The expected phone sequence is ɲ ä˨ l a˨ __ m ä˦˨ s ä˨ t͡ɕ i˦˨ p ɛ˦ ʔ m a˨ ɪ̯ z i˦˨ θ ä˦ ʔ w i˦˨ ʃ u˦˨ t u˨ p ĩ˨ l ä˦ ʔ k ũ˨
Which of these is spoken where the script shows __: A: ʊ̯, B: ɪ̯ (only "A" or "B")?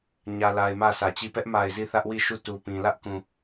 B